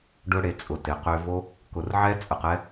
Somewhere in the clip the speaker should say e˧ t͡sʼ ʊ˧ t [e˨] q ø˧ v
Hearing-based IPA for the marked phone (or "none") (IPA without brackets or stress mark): e˨